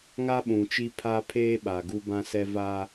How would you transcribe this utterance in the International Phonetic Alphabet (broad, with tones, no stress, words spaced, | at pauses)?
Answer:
ŋa˦ɓũ˨t͡ʃi˦ pʰa˦pʰeː˦ ɓa˨ɡu˦bã˦sɛ˦ va˦